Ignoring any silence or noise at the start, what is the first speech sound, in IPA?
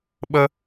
ɓ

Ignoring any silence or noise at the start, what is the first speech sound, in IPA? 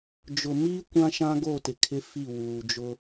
d͡ʒ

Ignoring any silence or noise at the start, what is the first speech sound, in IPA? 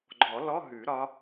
ɡ͡ǃ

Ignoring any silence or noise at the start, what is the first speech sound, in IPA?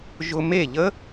ʒ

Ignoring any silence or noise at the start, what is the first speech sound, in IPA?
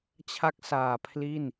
t͡ɕʰ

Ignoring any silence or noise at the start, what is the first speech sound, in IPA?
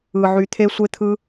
ɯ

